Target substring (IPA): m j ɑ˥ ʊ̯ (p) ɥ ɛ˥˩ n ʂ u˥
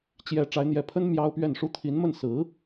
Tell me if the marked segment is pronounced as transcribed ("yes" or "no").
yes